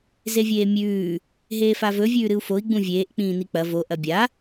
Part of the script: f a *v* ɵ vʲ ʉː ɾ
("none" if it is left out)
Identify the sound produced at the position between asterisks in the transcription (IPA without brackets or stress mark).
v